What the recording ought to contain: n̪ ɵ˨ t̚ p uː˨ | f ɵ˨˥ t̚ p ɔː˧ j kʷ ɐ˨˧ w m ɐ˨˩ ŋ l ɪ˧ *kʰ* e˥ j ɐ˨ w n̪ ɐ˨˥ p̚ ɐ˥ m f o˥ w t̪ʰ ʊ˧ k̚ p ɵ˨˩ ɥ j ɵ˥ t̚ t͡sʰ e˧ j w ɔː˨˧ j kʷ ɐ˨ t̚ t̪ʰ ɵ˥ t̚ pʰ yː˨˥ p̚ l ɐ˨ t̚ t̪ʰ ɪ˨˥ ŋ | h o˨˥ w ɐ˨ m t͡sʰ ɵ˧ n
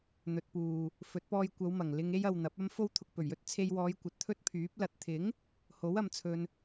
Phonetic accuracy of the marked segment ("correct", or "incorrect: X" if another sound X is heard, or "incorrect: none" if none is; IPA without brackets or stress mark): incorrect: ŋ